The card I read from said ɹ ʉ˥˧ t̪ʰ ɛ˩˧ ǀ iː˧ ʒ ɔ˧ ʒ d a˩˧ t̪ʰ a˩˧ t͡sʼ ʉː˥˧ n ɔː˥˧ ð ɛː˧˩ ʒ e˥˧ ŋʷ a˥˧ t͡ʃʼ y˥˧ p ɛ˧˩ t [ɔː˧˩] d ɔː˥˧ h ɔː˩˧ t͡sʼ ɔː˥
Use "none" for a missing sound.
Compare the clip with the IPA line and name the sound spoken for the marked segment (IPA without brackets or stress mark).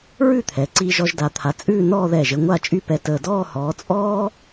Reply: əː˧˩